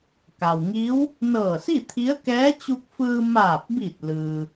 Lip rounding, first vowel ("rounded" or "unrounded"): unrounded